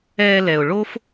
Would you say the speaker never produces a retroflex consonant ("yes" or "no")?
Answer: no